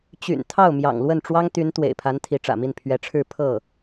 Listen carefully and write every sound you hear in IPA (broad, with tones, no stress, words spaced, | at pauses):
t͡ɕy̰˨˩n t̪ʰɑ˥˩ʊ̯mjɑ̰˨˩ŋ lwə˥˩nʈ͡ʂwɑ˥ŋ t̪y˧˥n t̪wḛ˨˩ɪ̯pʰa˧˥n t̪ʰi˧˥ʈ͡ʂä̰˨˩mi˥˩n pʰɥɛ˧˥ʈ͡ʂʰɻ̩˥˧ pʰɤ˥˩